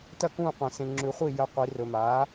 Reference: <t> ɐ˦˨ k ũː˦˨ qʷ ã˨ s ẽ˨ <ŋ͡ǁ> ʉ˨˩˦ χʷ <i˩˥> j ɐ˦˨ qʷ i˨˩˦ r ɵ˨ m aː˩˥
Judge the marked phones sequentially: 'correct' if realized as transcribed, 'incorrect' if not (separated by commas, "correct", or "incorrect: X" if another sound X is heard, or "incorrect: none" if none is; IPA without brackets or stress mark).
correct, correct, incorrect: i˦˨